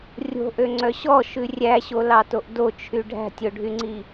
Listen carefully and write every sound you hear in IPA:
rʲ o̤ ʔ ø ŋ͡ǀ œ ɕ ɔ ʃ ʉ rʲ æ ɕ o l ɑ t o ʔ d o t͡ʃʰ y ɖʱ æ̤ tʲ o ɖʱ y ŋ͡ǀ i

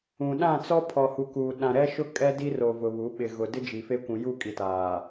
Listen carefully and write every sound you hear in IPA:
ũ˨ ɗ ã˦˨ t͡s ɔ˦ pʰ ɔ˨ h u˨ k u˨ ɗ ã˨ ɾ ɛ˦ ʃ ʊ˦ kʼ ɛ˦ d i˦ r o˨ v ʊ˨ β u˨˦ ɓ ɪ˨ ɣ ʊ˨ d ɪ˦ d͡ʒ i˨ f e˦ kʷ ũ˨ j u˦˨ kʼ i˨ t aː˨

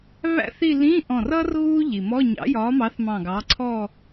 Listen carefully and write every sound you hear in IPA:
β æ̰˥ θ i˥˧ l ĩː˧˥˧ ʔ ɔ̃˧˩ r ʌ˥ r ɣ uː˥ ʎ i˩ m ɔ˧˥˧ ɲ ɑ̰˨˥ j ɒː˨˥ m ɑ˨˥ θ m ɑ̃˧˩ ɡ ɑ˨˥ ǀʰ ɔ˥˧

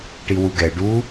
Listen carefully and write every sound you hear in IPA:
ʈ i w u ɡ ɛ ɖ u

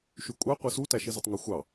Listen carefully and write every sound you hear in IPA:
ʃ y kʷʼ ɑ qʷ ɯ s u t æ ʃ i z ɯ tˤ ŋ u xʷ ɑ

